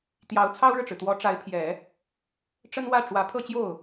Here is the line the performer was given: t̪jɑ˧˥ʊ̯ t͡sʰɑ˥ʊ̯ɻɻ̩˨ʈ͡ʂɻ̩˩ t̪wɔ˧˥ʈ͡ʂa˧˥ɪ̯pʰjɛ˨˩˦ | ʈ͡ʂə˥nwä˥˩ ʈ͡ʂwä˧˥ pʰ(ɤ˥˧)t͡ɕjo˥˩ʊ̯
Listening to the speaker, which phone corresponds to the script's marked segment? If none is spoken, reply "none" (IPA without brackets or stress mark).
ɤ˥˧